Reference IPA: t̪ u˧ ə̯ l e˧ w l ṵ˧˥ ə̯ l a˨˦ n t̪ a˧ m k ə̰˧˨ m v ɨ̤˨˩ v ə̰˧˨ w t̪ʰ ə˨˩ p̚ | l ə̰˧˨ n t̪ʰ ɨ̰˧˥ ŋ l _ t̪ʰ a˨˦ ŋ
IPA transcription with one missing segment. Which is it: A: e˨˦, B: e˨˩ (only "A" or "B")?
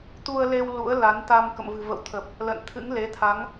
A